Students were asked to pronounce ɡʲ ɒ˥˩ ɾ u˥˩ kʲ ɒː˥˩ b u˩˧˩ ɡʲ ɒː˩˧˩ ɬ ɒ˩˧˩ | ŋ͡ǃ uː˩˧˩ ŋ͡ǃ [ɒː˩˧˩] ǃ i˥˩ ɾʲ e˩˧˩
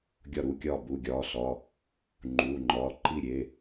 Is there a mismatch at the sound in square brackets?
no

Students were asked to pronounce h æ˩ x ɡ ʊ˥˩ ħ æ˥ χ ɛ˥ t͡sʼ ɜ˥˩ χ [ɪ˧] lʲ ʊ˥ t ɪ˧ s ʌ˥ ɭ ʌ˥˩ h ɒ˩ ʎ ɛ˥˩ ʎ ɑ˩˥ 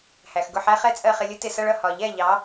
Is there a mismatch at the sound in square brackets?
no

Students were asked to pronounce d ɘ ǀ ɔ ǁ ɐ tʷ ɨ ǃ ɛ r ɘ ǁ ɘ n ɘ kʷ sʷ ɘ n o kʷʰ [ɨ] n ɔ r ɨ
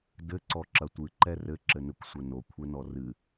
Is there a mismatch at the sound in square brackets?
yes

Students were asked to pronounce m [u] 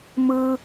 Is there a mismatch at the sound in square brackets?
yes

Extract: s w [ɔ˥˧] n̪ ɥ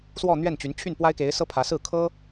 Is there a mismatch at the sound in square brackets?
no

